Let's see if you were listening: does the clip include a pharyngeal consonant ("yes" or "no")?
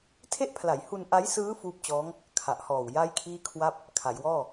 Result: no